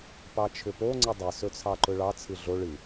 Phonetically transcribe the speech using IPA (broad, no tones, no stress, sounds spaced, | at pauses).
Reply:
p ɑ t͡ʃʰ ʏ p o ŋ͡ǀ ɨ dˤ ɨ s ɵ t͡sʰ ɑ ǃ ɵ ɭ ɑ t͡sʰ ɨ ɮ o ɭ ɨ